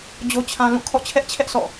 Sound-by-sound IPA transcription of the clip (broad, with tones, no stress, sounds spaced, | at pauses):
d͡ʑ o˦ t͡ɕʰ ã˦ l ũ˦˨ kʰ ɔ̰˦˨ t͡ɕʰ ɛ˦ ʔ t͡ɕʰ ɛ˦ ʔ s ɔ̰˦˨